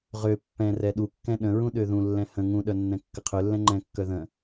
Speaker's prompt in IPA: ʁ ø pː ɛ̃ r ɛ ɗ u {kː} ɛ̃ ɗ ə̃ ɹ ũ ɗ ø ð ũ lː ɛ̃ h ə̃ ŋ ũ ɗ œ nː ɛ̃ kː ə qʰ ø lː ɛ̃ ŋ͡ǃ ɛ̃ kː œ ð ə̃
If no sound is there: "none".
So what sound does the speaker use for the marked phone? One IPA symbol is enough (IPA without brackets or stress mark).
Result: kː